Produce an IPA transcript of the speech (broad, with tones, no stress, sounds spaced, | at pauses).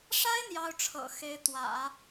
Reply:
ʂ a˥ ɪ̯ n̪ j ɑ˥ ʊ̯ ʈ͡ʂʰ ɤ̰˨˩ x e˧˥ ɪ̯ t̪ w ä̰˨˩˦